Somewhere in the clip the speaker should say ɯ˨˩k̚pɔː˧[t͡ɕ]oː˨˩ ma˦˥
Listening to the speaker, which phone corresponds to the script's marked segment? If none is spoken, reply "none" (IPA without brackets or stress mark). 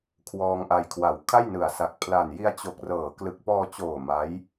t͡ɕ